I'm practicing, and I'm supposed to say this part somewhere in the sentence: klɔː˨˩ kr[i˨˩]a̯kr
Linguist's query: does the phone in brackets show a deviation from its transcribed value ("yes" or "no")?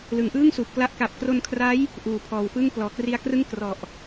yes